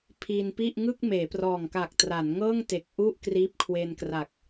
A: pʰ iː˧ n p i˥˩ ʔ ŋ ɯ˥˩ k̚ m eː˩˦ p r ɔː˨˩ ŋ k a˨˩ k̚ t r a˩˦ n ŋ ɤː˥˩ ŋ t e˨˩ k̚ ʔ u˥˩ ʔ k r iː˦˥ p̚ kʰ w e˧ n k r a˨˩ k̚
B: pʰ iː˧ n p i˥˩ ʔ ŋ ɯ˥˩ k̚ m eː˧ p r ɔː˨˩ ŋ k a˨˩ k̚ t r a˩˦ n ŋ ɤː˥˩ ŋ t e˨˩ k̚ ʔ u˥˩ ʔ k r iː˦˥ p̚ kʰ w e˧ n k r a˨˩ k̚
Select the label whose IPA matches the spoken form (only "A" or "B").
A